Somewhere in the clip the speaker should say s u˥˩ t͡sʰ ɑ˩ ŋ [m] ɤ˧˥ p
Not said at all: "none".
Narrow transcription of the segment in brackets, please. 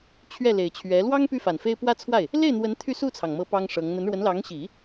m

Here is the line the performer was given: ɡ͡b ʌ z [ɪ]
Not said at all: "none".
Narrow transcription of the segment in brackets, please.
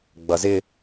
ɪ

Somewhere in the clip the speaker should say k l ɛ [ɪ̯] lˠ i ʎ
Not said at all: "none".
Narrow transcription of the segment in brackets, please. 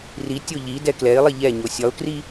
ɪ̯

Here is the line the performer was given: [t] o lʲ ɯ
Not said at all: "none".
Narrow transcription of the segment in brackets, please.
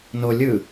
n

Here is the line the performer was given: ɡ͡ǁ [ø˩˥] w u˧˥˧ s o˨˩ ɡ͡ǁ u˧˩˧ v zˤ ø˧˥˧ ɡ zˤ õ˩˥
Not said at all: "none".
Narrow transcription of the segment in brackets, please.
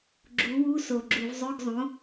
u˩˥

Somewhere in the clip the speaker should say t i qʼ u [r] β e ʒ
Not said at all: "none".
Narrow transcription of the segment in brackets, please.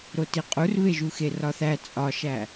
r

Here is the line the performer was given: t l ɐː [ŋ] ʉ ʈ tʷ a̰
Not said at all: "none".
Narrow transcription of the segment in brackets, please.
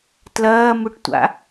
m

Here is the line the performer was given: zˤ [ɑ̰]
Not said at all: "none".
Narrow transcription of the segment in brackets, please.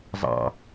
ɑ̰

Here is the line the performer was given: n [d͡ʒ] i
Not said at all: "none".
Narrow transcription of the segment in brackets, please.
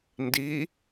d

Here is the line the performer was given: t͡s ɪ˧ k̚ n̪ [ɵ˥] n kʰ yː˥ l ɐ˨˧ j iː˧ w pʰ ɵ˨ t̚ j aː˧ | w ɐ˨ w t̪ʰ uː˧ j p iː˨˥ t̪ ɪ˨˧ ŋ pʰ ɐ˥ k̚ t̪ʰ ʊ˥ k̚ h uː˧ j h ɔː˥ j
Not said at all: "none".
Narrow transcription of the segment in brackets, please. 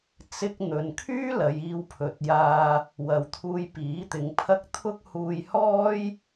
ɵ˨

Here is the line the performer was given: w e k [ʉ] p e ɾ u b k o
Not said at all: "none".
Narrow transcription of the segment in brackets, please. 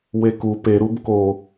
u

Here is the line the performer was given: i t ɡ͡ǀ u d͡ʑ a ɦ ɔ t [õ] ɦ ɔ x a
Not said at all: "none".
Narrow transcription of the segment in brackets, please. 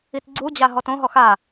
õ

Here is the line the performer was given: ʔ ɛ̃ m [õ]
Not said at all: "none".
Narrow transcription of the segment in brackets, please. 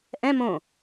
õ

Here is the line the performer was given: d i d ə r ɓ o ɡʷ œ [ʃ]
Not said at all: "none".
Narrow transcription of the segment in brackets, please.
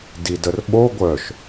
ʃ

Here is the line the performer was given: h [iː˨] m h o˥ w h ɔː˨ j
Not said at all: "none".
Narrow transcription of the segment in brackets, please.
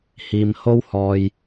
iː˨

